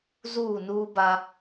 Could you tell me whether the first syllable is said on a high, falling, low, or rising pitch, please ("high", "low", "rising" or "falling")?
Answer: falling